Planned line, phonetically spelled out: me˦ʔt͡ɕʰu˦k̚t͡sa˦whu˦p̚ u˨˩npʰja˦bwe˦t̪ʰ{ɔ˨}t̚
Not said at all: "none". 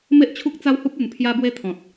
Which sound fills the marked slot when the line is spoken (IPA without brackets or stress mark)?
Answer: ɔ̃˨